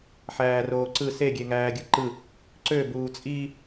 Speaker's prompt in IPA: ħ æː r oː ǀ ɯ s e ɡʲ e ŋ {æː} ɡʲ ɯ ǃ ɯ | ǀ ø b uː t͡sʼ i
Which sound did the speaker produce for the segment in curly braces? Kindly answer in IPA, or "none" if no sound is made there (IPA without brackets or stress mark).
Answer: æː